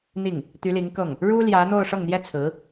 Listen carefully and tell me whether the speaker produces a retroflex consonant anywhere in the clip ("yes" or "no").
yes